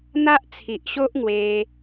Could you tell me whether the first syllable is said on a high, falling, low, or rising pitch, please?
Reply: high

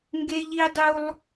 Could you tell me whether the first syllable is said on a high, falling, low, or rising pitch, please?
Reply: high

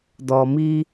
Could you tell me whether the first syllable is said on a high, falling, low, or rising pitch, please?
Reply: low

